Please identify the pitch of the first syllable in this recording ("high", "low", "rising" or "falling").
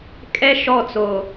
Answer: high